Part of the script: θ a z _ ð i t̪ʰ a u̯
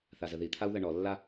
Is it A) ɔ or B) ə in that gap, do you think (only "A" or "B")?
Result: B